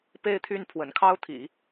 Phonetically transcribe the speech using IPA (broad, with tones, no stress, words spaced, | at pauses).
pe˥˧ɪ̯t̪ʰy˥˩n pʰwə̰˨˩nkʰɑ˥ʊ̯t̪ʰḭ˨˩˦